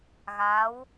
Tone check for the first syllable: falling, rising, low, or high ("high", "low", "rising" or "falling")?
rising